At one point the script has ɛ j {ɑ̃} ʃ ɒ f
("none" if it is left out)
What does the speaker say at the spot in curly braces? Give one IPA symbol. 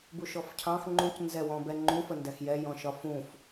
ɔ̃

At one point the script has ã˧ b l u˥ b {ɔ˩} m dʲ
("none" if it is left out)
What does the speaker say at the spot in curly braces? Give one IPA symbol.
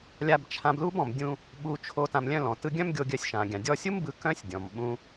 ɔ̃˩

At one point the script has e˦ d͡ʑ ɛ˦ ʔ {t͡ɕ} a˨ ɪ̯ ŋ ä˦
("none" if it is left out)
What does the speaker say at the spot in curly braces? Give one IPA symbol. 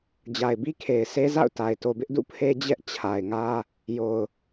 t͡ɕʰ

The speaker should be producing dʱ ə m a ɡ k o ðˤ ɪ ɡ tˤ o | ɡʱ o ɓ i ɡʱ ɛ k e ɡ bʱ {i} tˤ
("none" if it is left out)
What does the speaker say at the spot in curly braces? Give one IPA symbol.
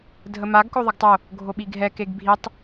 i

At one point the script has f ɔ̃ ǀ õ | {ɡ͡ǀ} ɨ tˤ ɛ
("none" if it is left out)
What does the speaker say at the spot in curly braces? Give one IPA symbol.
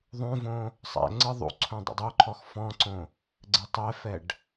ɡ͡ǀ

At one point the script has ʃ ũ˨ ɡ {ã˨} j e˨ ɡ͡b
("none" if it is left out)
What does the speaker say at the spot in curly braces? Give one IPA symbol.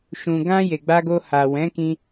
ã˧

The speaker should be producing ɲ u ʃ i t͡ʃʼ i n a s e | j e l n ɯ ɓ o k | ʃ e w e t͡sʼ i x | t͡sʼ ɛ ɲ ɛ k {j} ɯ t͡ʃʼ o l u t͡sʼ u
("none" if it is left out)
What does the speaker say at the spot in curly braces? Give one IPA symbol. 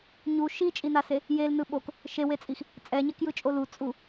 j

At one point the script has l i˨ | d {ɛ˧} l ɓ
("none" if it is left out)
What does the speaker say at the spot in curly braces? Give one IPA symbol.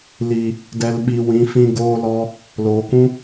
ɛ˧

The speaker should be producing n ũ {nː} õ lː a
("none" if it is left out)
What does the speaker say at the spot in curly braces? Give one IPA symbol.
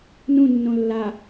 nː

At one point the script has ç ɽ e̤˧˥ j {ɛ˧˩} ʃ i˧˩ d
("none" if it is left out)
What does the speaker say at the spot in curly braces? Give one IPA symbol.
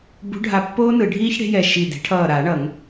ɛ˧˩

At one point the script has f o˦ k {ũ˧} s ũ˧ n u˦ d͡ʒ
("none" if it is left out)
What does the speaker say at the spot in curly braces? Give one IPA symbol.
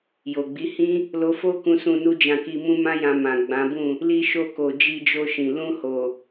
ũ˧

